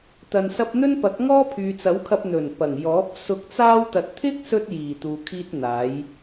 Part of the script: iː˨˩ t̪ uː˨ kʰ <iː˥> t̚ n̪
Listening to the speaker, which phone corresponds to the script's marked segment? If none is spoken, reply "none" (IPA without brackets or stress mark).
iː˥